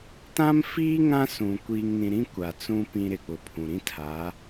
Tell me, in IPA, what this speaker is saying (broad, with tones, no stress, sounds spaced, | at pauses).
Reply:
t ã˦ m f iː˦ ŋ ã˦ s ũ˨ kʷ iː˨ ŋ n ĩ˨ ɾ ĩ˦ kʷ a˨ t͡s ũ˦ p ĩ˨ ɾ ɪ˨ k͡p ʊ˨ pʰ ũ˨ ɾ ĩ˦ tʰ a˨˦